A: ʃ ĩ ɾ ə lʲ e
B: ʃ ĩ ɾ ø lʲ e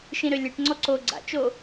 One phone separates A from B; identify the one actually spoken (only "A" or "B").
B